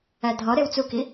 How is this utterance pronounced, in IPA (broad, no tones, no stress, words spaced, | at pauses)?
ædʱɒɾew t͡suki